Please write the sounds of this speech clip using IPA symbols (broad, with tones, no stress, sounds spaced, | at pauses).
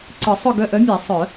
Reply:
ǀ ɯ˨˩˦ sˤ ʊ˦˨ ɡ œ˦˨ ʔ œ˧˥ mʲ a˨˩˦ sˤ œ˨˩˦